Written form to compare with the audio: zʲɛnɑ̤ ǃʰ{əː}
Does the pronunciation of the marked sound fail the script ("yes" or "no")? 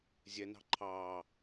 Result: yes